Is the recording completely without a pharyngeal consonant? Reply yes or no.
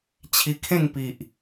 yes